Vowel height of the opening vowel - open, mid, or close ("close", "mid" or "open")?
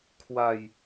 open